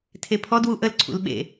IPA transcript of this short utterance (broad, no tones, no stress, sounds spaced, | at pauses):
tʰ e pʰ ɔ d w u ʔ ə l ǀʰ ṵ l ɓ ḛ